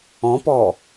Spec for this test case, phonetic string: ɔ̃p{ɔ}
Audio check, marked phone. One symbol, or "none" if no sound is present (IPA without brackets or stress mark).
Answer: ɔ